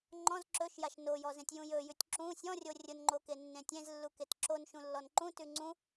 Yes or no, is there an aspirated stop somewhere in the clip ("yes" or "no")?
no